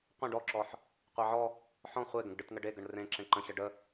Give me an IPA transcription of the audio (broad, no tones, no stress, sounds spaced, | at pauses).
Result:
qʷ ə̃ ɖ ɔ ǁ ɔ ħ | qʷ e ʕ ɔ | ħ ɔ̃ χʷ e ɡ ə̃ ɡ ɖ ɯ t ŋ ə ɖ e ɡ ə ɳ r ẽ ǁ ẽ ǃ ə̃ ɕ ə ɖ ə